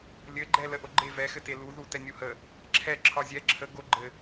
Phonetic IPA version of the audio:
lʲ ɘ ɡ͡ǃ ɛ l ə ʔ o ɡ͡ǃ e v ɛ x ɘ t e l u ð u t ɛ nʲ u h ə | ǁʰ ɛ ǁʰ ɒ zʲ ɛ ǁʰ ə ɡ o ɡ͡ǃ ɘ

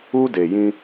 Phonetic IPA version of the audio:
u˦ d e˨ j ĩ˦

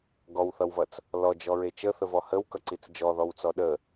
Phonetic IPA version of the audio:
ɡ ɔ w θ ʌ w v ʌ t͡s | l ɔ d͡ʒ ɔ ɹ e t͡ʃ ə θ ə v ɔ h ə w k ʌ ǀ i t͡s d͡ʒ ɔ ð ɔ w t͡s ɔ ɗ ə

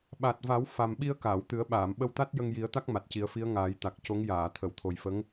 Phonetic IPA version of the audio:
ɓ a˨˩ t̚ v a˨˩˦ w f a˨˩ m ɓ i˧ ə̯ k aː˨˩˨ w t̪ ɨ˨˩˦ ə̯ ɓ aː˨˩˨ m ɓ ə˧ w t̪ a˦˥ t̚ j ə˧ ŋ j i˨˩˦ ə̯ t̪ a˦˥ k̚ m a˨˩ t̚ c i˨˩˦ ə̯ f i˧˥ ə̯ ŋ aː˨˩˦ j t̪ a˨˩ k̚ c o˧˥ ŋ j aː˨˩˨ t̪ʰ ə˨˩˨ w t̪ʰ o˨˩ j f ə˧˥ ŋ

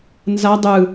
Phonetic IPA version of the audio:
n z a dˤ ɯ

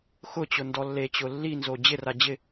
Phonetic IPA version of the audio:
x ʊ t͡ɕ ʊ n d ɔ lː e t͡ɕ ʊ lː i n z o d͡ʑ ɪ r a d͡ʑ ɪ

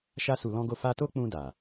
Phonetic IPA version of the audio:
ʃ a˧ s u˨ l ɔ̃˧ ɡ o˧ f a˧ t o˦ k͡p ũ˧ d a˨

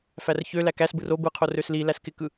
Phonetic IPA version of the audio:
f æ r ç ø l æ k æ s b ɯ r o b ɯ qʰ o r ø s l i l æ s k ɪ k ɯ

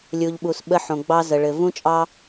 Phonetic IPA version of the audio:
lʲ u˨ ʎ ɓ u˨ s ɓ ə˧ ħ õ˨ ɡ͡b ɑ˧ z ə˨ ɭ ɘ˨ v ũ˦ t͡ʃʼ ɑ˦

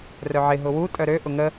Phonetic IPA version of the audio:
r œ ʕ ɪ ɦ ʊ w u tʼ œ ɾ ø ʔ ʊ ŋ ə

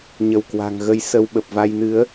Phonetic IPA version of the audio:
ɲ ə˧˩ w k w a̤˨˩ ŋ ɣ ə˧ j s ə˧ w ɓ ə˨˩ p̚ v a˧ j n ɨ˨˦ ə̯

